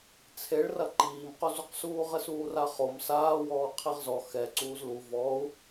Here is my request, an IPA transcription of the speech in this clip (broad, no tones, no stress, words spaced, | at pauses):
t͡sʰeɭrɐ ǃiːmqozuqsuː ʁɘsuːraχom saːwɔː qʰiʁzɔ xɛ ǀuːzlu vɔu̯